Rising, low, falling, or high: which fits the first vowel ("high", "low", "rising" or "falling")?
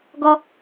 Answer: high